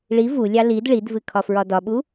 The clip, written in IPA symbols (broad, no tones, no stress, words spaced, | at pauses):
ɭi vulʲɑ lid ɭidvɨ kʰɒfɹɒdɒɓu